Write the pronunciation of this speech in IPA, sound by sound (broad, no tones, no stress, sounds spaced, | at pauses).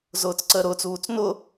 z ʊː t͡s ǀ əː ɾ ʊː t͡s uː t͡s n ʊ